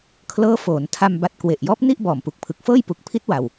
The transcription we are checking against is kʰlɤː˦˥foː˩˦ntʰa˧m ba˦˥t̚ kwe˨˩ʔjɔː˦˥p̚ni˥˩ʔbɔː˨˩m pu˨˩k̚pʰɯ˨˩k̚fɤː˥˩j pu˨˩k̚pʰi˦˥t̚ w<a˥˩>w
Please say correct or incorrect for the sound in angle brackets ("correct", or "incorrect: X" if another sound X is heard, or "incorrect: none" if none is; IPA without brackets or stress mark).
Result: incorrect: a˧